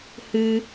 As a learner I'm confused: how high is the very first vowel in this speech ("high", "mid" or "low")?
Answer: high